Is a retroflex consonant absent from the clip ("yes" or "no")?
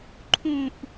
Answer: yes